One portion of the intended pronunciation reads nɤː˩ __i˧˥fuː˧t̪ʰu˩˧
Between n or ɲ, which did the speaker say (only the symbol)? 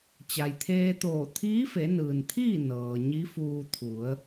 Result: ɲ